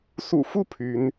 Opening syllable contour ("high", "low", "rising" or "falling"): low